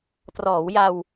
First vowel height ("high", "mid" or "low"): mid